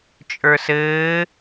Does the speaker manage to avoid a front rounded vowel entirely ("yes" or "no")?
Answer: yes